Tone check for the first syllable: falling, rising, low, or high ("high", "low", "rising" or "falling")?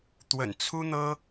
low